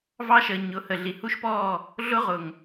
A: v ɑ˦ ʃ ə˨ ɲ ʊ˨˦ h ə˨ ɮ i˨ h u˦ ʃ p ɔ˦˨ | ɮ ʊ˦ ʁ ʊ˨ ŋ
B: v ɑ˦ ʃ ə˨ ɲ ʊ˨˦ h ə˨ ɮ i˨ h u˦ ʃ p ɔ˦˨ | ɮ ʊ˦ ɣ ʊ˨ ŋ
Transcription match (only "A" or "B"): A